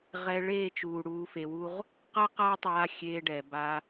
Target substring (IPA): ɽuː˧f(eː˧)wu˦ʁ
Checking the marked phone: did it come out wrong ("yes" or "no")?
yes